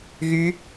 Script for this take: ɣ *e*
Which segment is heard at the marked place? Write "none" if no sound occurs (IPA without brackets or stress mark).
y